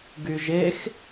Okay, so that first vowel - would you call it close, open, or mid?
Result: close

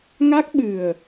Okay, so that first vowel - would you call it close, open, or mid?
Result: open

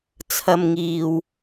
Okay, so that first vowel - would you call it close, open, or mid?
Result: open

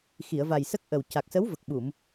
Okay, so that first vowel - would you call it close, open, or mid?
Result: close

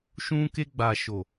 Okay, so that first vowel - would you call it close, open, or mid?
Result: close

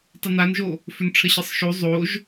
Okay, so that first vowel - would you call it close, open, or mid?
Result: close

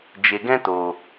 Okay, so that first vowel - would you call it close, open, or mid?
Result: mid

